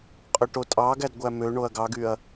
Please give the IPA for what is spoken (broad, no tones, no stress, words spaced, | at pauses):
qʼøʈotʼɑɡæd ɡʷæmøɳoɐ̯ ɡɑɡyɐ̯